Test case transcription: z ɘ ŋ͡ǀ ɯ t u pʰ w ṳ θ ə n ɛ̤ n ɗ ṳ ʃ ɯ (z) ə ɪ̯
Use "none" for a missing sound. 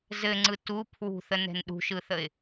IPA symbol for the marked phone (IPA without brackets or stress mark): θ